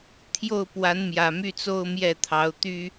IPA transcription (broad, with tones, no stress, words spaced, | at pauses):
t̪ʰjo˥˩ʊ̯ pwa˧˥nmjä˨˩my˥˩t͡so˥ʊ̯ mjɛ˥˩t̪ʰɑ˧˥ʊ̯ t̪y˥